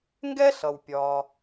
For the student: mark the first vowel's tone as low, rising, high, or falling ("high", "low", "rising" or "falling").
high